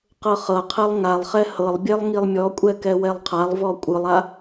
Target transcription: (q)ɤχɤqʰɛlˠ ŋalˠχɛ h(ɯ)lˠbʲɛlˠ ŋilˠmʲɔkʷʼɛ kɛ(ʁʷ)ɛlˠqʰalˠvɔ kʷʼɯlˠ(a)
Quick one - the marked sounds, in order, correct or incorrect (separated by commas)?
correct, incorrect, incorrect, correct